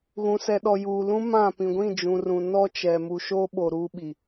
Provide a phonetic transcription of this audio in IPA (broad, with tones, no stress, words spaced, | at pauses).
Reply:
ɣũ˨ sɛ˨ɗɔ˨ juː˨lũ˦ mã˦˨ pĩ˨ɡʷĩ˦˨d͡ʒũ˨rũ˨ nɔ˦t͡ʃɛ˨ mu˨ʃoː˦ɓo˨ ɾuː˦ɓi˨